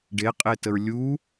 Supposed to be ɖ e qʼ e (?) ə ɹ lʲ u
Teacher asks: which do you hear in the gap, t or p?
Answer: t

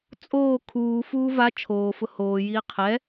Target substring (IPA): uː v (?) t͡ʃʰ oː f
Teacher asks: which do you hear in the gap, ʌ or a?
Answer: a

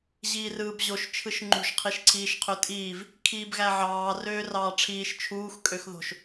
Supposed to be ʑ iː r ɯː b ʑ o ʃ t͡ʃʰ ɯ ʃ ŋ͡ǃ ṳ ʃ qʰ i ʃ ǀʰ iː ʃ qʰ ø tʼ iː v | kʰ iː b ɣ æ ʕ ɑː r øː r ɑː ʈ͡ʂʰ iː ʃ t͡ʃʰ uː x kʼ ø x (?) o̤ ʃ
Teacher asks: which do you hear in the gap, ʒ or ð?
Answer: ð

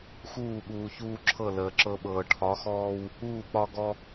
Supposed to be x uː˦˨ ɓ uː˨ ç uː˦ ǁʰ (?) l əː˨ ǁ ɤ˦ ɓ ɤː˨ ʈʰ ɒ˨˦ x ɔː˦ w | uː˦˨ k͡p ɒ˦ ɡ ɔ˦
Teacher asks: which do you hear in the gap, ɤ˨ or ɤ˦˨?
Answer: ɤ˦˨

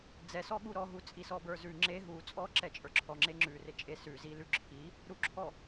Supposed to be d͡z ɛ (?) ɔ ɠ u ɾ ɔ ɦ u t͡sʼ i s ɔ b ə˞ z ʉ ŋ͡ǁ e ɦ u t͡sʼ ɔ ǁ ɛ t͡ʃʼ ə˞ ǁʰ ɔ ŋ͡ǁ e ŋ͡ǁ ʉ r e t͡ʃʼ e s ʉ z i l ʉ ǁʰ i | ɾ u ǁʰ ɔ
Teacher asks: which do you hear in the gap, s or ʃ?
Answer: s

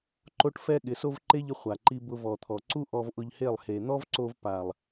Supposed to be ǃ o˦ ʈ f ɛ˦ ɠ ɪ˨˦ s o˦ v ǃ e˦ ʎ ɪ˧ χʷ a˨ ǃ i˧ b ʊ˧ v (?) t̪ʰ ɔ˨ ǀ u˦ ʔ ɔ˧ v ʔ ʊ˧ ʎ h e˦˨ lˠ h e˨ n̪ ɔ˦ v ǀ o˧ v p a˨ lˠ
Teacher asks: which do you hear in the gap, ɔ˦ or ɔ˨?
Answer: ɔ˨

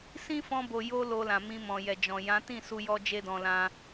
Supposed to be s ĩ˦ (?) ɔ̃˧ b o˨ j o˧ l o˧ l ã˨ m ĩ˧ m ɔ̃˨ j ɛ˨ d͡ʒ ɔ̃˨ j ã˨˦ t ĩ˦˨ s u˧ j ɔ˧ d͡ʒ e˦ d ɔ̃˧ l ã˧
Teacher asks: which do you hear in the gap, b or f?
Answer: f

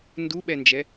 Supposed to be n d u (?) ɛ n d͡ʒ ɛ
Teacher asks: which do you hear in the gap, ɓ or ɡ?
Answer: ɓ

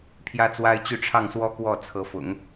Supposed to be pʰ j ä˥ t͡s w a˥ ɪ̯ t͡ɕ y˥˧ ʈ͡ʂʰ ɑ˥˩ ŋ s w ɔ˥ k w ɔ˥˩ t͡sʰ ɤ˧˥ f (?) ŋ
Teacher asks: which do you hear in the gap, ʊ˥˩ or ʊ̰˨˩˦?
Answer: ʊ̰˨˩˦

